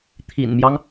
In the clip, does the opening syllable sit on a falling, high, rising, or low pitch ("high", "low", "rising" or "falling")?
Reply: low